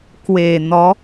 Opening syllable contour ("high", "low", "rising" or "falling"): low